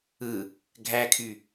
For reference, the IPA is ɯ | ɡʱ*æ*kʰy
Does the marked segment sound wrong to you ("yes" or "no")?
no